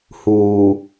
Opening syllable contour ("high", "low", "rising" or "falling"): low